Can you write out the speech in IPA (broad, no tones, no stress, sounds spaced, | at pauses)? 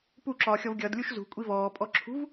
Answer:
p u ǁ ɒː xʲ ɔ v ɡʲ ʌ d lʲ u ʃ z ṳ kʷʼ i v ɔː pʼ ɔ ǁʰ ṳ v